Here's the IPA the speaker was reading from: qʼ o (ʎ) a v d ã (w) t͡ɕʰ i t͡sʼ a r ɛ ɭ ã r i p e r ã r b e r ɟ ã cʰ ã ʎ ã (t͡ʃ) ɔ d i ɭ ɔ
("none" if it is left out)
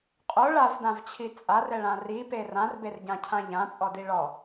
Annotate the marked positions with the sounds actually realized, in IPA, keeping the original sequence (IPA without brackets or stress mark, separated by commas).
ɭ, v, t͡sʼ